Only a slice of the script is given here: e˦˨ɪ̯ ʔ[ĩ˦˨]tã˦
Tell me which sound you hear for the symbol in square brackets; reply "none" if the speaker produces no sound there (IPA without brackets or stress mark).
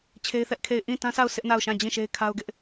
ĩ˦˨